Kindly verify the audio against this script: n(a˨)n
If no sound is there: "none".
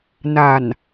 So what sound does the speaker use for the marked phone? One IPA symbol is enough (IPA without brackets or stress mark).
a˨